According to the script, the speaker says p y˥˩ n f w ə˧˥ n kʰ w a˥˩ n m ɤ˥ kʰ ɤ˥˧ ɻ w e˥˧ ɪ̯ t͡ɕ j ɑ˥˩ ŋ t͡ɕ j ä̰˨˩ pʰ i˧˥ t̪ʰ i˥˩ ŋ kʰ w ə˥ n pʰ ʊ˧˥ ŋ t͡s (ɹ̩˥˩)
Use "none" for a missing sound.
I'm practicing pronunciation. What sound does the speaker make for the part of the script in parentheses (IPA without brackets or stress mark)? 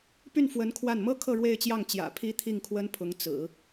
ɹ̩˨˩˦